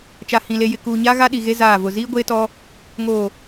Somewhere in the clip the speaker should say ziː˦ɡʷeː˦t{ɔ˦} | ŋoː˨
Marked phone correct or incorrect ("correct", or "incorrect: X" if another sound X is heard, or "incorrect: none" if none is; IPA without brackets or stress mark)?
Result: correct